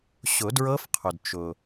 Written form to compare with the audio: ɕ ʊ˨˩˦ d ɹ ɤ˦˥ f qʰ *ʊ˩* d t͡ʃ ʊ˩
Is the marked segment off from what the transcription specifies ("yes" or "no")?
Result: no